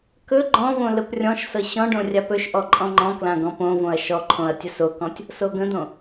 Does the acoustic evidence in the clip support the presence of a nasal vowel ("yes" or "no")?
yes